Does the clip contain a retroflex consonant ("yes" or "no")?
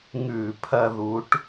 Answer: yes